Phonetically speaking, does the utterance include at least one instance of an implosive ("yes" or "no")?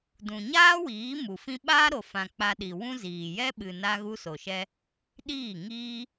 yes